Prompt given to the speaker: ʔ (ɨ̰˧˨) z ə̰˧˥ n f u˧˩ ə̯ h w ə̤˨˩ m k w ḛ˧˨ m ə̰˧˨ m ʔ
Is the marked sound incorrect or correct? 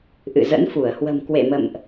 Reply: correct